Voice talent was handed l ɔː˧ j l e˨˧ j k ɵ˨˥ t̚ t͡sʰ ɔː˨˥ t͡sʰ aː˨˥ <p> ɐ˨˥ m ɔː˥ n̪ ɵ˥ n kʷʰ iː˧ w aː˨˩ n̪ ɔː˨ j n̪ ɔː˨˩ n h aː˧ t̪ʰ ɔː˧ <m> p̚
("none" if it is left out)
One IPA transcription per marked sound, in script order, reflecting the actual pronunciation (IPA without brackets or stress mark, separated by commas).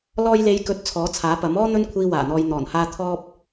p, none